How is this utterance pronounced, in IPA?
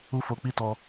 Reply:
u˦ f o˧ k͡p i˦ t ɔ˧

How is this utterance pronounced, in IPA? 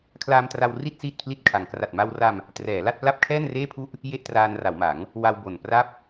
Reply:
kʰ l aː˧ m t r a˧ w r i˥˩ t̚ s iː˥˩ t̚ pʰ l i˥˩ t̚ kʰ a˧ ŋ k r a˨˩ t̚ m a˧ w r a˧ m | t r ɛː˩˦ l a˥˩ t̚ p l a˥˩ p̚ kʰ ɛː˥˩ n r eː˥˩ pʰ u˥˩ ʔ | j e˥˩ ʔ t r aː˧ n r a˩˦ w m a˩˦ ŋ | w a˧ w b o˨˩ n p r a˥˩ p̚

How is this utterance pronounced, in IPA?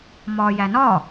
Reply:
m ɒː j æ n ɒ

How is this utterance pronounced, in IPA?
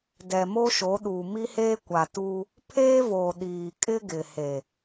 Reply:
d ɛ˨ m o˦ ʃ o˨˦ ɗ uː˨ m i˦ h eː˦ kʷ a˨ t uː˦ | pʰ eː˦ v oː˨ ɗ iː˨ kʼ ɪ˦ ɡ ɪ˨ h e˨

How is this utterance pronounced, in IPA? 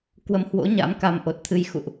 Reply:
k w ə˨˦ m h w o̰˧˥ ɲ a̰˧˥ m k a˧ m ʔ o˨˩ t̚ t̪ʰ ɨ˧ j x ṵ˧˨ ʔ

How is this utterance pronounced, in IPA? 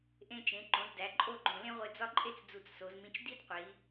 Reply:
ʔ ẽ˧ t͡ʃ ẽ˩˧ ǃ õ˩˧ z d æ˩˧ ǃʼ o˥˧ ɡ͡ǃ õ˧˩ l ẽ˥ ʁʷ e˧ d͡z ɒ˥˧ ǃʼ e˥ t͡s d͡z u˧˩ t͡s s o˩˧ z m ĩ˧ t͡ʃ d i˥ d qʷ i˩˧

